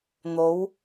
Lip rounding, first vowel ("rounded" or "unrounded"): rounded